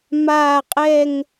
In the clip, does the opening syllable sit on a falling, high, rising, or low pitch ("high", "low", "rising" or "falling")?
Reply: falling